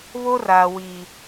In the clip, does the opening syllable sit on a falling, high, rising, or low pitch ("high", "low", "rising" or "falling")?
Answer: high